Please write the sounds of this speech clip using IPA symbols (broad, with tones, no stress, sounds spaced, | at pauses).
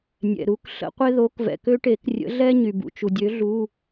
nʲ ɛ̰˩ ɾ u˩˧˩ k ɬ ə̰˥ qʷ e˥ ð o˨˥ k v ɛ̰˩ k ø˥ ʈ e˨˩˦ k rʲ ə̰˨˥ ɮ ɛ˥ ɲ y˩ b ṵ˩˧˩ t͡ʃ u˩ dʲ ø˨˥ ɮ u˩˧˩